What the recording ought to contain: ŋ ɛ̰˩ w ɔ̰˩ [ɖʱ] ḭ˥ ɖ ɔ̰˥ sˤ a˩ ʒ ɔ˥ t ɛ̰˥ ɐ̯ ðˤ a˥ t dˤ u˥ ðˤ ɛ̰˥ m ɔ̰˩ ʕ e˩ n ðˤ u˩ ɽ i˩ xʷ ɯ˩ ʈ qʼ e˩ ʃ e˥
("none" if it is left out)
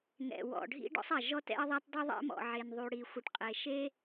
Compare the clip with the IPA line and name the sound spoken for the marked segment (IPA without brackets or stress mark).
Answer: ɖʱ